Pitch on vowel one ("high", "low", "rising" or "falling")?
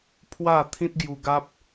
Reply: falling